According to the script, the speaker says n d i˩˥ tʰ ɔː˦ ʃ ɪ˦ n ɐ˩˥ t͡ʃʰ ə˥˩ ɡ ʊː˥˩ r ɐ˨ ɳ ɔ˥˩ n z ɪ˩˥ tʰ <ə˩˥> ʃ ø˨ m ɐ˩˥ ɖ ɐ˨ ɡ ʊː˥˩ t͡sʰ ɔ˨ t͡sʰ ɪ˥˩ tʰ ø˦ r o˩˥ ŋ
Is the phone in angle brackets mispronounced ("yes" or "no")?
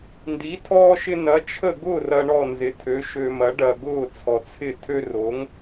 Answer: yes